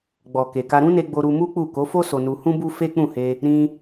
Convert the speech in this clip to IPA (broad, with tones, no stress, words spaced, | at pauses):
ɡ͡bɔ˨ ke˨ka˧ ɾũ˦ne˧ ɡ͡bo˧ɾu˧mu˦k͡pu˦˨ ko˨˦fo˦ so˧nu˧hũ˦bu˦ fe˦k͡pũ˦˨he˧ | ɾĩ˧